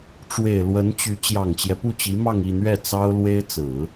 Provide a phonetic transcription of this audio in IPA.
ʈ͡ʂ w e˨˩ ɪ̯ l w ə˧˥ n t͡ɕ y˧˥ t͡ɕ j ɑ˨˩ ŋ t͡ɕ j ɛ˦ p u˥˩ t͡ɕ i˧˥ m ɑ˥˧ ŋ i˥˧ n̪ ɥ ɛ˥˩ t͡s ɑ˥ ʊ̯ l w e˥ ɪ̯ t͡s ɹ̩˨˩˦

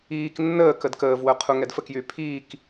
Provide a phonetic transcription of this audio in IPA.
iː k nː əː k ə d k əː v w œ qʰ u ŋ ɛ d f ə k j y pʰ iː k

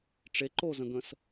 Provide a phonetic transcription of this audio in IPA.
ʈ͡ʂ e ǃ o z ə̃ ɡ ə̃ s

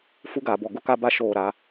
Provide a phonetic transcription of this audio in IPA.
f u˦ ɡ aː˨ b ɔ˨ ɡ ʊ˦ k a˦ b a˦ ʃ oː˦˨ ɾ a˦

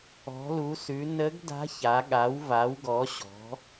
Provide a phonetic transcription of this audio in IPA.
ɔ̤˩˧ l u˩˧ s ʉ˩˧ n ə˧˥ ɡ d a̤˧˥ ç a˩˧ ɠ a˩˧ w v a˩˧ w ɡ ɔ˩˧ ɕ ɔ̤˩˧

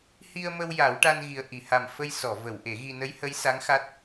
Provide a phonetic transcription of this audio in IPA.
h i˧ ə̯ m ə˧ w j a˨˩˦ w ʈ a˧ n ɣ i˨˩ ə̯ ʔ i˨˩˨ h a˨˩ m f ə˧ j s ɔ˨˩˨ v ə˨˩˨ w ʔ e˨˩˦ ɣ i˧ n ə˧˥ j h ə˧˥ j s a˧˥ ŋ x a˦˥ t̚

